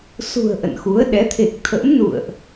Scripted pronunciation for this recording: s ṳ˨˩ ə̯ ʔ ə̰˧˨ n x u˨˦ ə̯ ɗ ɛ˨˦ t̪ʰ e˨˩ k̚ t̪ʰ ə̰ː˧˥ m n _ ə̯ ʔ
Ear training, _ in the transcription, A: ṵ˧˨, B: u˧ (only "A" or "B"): A